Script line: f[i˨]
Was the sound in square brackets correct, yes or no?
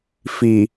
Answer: yes